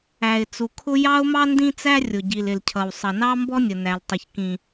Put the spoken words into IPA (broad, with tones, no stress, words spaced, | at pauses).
æ˩ɪ̯ t͡su˩kʰʊ˥ jɑ˥ʊ̯mɑ˥ndĩ˥t͡sæ˥ rʲʊ˩ɟi˩l ɪ˩lcʰʌ˩w sˤʌ˩nɑ˥mbɔ˥ nʲə˩næ˩l tˤʌ˩çkĩ˩